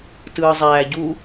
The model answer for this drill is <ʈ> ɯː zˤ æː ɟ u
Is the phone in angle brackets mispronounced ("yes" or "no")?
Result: yes